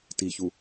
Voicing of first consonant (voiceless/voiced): voiceless